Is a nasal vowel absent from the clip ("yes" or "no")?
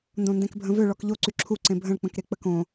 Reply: no